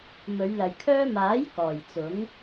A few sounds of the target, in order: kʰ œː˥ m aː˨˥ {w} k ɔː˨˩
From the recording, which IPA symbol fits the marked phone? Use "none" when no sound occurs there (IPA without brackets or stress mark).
j